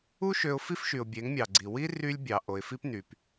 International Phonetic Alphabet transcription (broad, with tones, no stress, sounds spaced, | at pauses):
u˦ ʃ ø˧ ʊ̯ f i˦ f ʃ y˨ ʊ̯ bʲ e˨˦ ŋ mʲ ɑ˨ ɡ͡ǀ i˨ w i˦ r y˦ lʲ bʲ ɑ˨ ʔ o˨ ɪ̯ f i˦ p n y˨ p